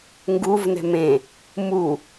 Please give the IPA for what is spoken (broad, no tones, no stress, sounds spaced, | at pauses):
ŋ ɡ u v n ɛ̤ m ẽ | m u